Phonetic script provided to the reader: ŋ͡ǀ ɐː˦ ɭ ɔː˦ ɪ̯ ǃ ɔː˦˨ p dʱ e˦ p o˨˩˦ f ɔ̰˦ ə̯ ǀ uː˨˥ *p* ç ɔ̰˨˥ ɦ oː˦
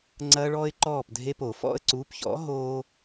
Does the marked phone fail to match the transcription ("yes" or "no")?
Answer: no